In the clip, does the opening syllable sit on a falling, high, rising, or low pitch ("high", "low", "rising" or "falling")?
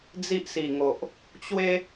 high